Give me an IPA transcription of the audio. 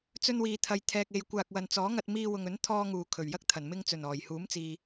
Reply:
t͡s ɵ˧ n w iː˨ t̪ʰ ɐ˨ j t̪ʰ ɛː˨ k̚ e˨ j kʷ aː˨ k̚ w ɐ˨ n t͡s ɔː˨˥ ŋ ɐ˧ t̚ m iː˧ w ʊ˨ ŋ ɵ˨˥ n t̪ʰ ɔː˧ ŋ uː˨˩ kʰ ɵ˨˩ ɥ j ɐ˥ k̚ t̪ʰ ɐ˨˩ n m ɪ˧ ŋ t͡s ɵ˨˩ n ɔː˨˩ j h uː˨˥ m t͡s iː˨

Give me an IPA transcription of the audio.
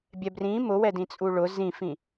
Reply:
bʲ ɛ b r ĩ m ʊ w ɛ d ĩ t͡sʼ u ɭ ʊ z ĩ f ĩ

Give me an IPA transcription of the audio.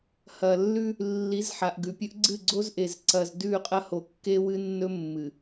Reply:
h ɐ˨ lː ʉ˦ | lː i˨˦ z ħ a˨ ʔ ɡ ʉ˨ pʲ ɵ˦ ʔ ɡ͡ǀ ɨ˦˨ ɡ͡ǀ o˦ z ʔ e˨ z ǀ ɐ˨ z d ʉ˦˨ qʼ ɐ˦ h o˨ kː e˦ w ɨ˦ nː ɵ˦ mː ɨ˨

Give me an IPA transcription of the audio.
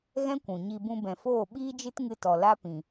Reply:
ɣ ɛ̃˦ kʷ ũ˨ ɲ i˧ b ũ˧ b ɛ̃˨ f oː˦˨ ɓ iː˦ d͡ʒ ɨ˦ t ŋ ɨ˧ t ɔ˨ l a˦ p ĩ˨

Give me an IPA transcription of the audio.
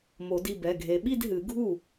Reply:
m o˨˩˦ d i˥˩ b ɛ˩˧˩ ɡʱ e˨˦ ɓ i˥˧ d ɦ ɨ˨˩˦ ɡʱ u˥˩

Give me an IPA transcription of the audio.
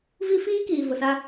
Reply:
v i˦ f iː˦ k iː˨ v ʊ˨ s a˦

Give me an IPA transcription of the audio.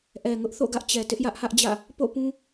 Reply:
ʔ ɛ˨ ŋ ʊ˦ ʔ θ o̰˦˨ ɡ ä˦ ʔ t͡ɕ ɛ˨ t ɪ˦ ʔ j ä˦ ʔ h ä˦ ʔ d͡ʑ ä̰˦˨ | p o̰˦˨ p ũ˦

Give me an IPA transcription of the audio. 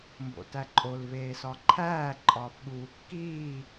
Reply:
m b o̰ t æ ǃʼ o l v eː s ɒ ǃʰ æː ǃʼ ɒː f ɠ uː kː iː

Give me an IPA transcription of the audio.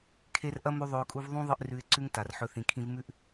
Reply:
kʰ e˧ r ʔ ɐ˦ m ʉ˦ ðˤ ɵ˧ ʊ̯ kʼ u˦ v ðˤ ũ˦ ðˤ ɨ˦ ʔ r ʉ˧ ɪ̯ ǀ ʉ˦ ŋ t a˨ r ħ ɵ˧ θ ĩ˨ kʰ ĩ˧ v m ʉ˦ ʔ

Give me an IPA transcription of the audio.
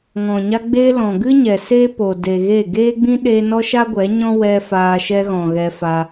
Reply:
ŋ ɔ̃˨ ɲ a˧ ɡ͡b eː˧ l ɔ̃˨ ɡ ɨ˦ ɲ ɛ˨ s e˦ p o˨ d e˨ ɣ e˦˨ ɡ eː˦ ɡ͡b ĩ˦ ɗ eː˧ n ɔ˦ ʃ a˦ ɡʷ ɛ˨˦ ɲ ɔ̃˦ w ɛ˦ f aː˧ ʃ ɛ˧ ɣ ɔ̃˨ ɣ ɛ˧ f a˧

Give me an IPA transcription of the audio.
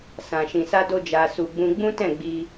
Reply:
s ã˨ ʃ ĩ˨ s a˧ d o˧ d͡ʒ a˨ s u˨ ɡ͡b ũ˧ ɡ͡b ũ˦ t ɛ̃˦˨ ɡ͡b i˧

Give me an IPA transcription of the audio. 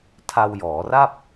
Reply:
tʰ a˧ w j ɔː˩˦ r a˥˩ p̚

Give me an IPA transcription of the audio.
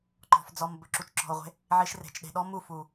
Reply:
ǃ ɔ̤˨ f d͡z ɔ˨ m b ɵ˨ ǁ u˨ t͡ʃ ǁ ɔ̤˨ o̯ ʁʷ e̤˧ | ʕ i˧ ʃ r e̤˨ t͡ʃ ɗ e̤˨ ɗ ɔ˦ m u˦˨ f u˨

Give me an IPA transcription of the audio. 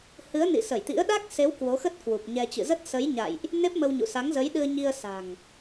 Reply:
h ɨ˨˦ ə̯ n ḭ˧˨ s ə˧˩ j t̪ ḭ˧˥ ə̯ ɗ a˦˥ k̚ s e˨˦ w k w o˨˦ x ə˦˥ t̚ k w u˨˩ p̚ ɲ ɛ˧ t͡ɕ ɨ̰˧˨ z ə˦˥ t̚ s ə˨˦ j ɲ a̰˧˨ j ʔ | n e˦˥ p̚ m ə˧ w ɲ ṵ˧˨ s a˨˦ ŋ z ə˨˦ j ɗ ɨ˧ ə̯ ɲ i˧ ə̯ s a̤˨˩ ŋ

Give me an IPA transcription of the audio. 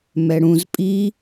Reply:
m ɛ ɽ ũ z pʼ i

